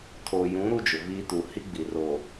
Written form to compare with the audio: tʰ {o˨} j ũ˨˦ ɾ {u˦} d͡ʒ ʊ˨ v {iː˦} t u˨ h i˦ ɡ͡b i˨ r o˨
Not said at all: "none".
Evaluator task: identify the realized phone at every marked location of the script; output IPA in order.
o˨, u˦, iː˦

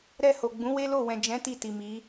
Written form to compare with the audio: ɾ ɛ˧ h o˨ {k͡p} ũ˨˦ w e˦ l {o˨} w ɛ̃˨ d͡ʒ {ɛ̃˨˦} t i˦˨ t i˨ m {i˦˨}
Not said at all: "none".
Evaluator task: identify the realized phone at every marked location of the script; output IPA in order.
ɡ͡b, o˦˨, ɛ̃˨˦, i˨˦

